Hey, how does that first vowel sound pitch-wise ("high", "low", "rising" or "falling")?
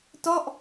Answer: falling